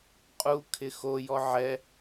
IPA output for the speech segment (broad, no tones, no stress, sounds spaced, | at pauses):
qʼ u kʰ ɪ x o j ɔ ʕ ɛ